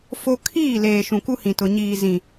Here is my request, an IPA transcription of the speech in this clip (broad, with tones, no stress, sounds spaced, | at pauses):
f o˦ kʰ iː˦˨ l eː˨ ʃ ũ˨ k u˦ h ĩ˨ t ʊ˨ ɲ iː˨ z ĩ˨